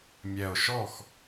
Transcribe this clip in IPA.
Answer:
mʲɛ˨˩o̯ʃɔ˥˩x

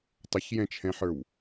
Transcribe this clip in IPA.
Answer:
tˤəçjɛ̃t͡ʃʰɛ̃ħə˞w

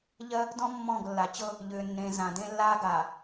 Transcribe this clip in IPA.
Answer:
ʎɜ˦ | dɔ̃˦ mːɔ̃ː˦˨ɡlːa˨ t͡ɕɤ˦ | ʎʏː˨nːẽ˨zã˨ dẽ˦lːaː˦ɡaː˨

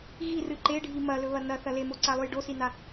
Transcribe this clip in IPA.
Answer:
ɣirɨ ǃeɖʱi mɐlɵβɐ nɐθɐ lemoǀalˠʉj ɖosina

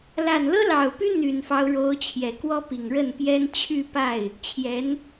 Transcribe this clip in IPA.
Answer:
la˨˩nlɤ˥lɑ˨˩ʊ̯py˥ n̪y˨˩nfɑ˦ʊ̯ɻo˧˥ʊ̯ t͡ɕʰjɛ˨˩kwɔ˥pi˨˩ŋ ɻə˥˩npjɛ˥n t͡ɕʰy˥˧pa˥˩ɪ̯ | t͡ɕʰjɛ˧˥n

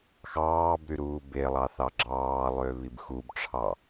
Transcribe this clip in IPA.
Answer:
xɑːbɾy ɾuːbelˠɑ θɑɡ͡ǁɑːlˠø βibxubʈ͡ʂʰɑ

